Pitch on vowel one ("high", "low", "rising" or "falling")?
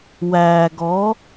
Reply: low